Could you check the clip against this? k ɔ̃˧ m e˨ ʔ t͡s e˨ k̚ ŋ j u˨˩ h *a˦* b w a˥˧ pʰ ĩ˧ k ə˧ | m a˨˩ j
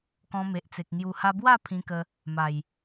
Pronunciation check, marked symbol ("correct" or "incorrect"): incorrect